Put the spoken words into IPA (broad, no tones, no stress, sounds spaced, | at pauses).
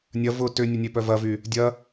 nʲ ɐ v ʊ t ʏ nʲ ə nʲ e p œ v ɐ v y | dʲ ɐ